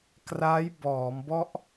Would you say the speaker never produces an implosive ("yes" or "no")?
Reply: yes